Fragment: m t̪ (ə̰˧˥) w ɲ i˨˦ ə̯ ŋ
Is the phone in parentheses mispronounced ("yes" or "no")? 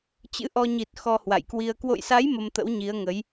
no